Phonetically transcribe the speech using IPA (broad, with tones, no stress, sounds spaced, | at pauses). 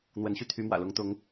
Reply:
n̪ w ə˨˦ n ɕ y˧ t̪ʰ y˨˦ m w ä̰˨˩ l ʊ˨˦ ŋ t̪ ʊ˨˦ ŋ